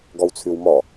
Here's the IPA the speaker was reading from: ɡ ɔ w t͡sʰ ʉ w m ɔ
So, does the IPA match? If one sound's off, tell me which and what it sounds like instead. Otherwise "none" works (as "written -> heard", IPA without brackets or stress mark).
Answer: none